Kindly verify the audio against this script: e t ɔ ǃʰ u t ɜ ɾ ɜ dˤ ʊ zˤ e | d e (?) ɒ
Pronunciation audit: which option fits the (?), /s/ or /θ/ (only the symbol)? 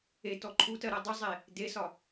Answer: s